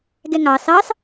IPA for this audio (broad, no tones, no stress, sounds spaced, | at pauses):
ɡ ɛ ŋ ɑ s ɑ s